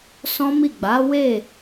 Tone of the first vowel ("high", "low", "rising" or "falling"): high